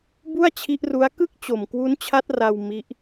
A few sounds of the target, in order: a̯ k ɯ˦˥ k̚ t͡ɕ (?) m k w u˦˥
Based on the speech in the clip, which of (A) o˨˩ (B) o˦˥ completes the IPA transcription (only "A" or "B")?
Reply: A